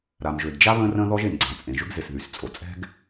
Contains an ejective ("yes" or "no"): yes